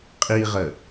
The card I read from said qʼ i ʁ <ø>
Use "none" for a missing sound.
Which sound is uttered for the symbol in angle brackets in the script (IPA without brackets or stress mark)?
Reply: ə